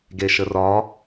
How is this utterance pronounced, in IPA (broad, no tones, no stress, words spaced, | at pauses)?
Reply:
ɡeʃərɒ